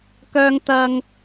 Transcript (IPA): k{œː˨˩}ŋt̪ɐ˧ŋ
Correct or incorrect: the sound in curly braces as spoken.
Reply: incorrect: œː˧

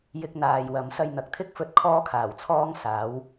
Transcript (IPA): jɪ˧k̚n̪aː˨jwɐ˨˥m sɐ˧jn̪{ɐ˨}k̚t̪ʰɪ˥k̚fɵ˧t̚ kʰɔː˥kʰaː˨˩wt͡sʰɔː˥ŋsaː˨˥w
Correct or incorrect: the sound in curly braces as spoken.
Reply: correct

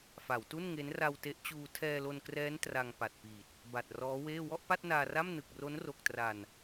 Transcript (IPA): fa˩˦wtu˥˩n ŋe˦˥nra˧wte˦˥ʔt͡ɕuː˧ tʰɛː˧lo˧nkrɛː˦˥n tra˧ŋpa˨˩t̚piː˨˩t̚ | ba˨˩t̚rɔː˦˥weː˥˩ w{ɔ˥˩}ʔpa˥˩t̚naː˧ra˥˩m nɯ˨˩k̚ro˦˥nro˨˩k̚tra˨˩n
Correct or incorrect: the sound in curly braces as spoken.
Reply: correct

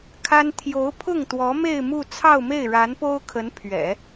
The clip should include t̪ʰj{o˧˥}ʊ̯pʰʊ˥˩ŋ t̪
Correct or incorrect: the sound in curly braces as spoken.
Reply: correct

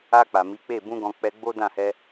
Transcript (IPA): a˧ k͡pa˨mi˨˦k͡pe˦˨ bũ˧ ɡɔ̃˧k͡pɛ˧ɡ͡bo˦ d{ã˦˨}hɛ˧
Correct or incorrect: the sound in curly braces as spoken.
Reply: correct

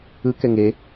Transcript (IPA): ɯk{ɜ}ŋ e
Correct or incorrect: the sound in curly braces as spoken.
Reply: incorrect: ɛ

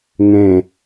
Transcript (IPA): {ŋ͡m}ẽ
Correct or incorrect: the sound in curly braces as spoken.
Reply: incorrect: ŋ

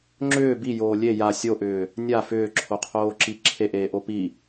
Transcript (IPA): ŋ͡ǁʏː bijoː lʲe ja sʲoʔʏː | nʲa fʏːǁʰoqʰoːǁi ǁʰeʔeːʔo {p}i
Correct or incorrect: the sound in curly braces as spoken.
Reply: correct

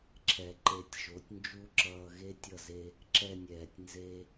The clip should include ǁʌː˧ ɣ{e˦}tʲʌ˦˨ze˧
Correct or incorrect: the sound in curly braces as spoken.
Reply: correct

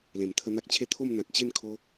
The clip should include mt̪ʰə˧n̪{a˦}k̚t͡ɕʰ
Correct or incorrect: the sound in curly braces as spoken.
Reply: correct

